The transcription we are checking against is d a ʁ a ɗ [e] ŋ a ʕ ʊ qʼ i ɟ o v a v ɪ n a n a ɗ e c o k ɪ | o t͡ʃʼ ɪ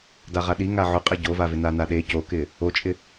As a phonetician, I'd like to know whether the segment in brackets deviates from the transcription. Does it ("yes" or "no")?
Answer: yes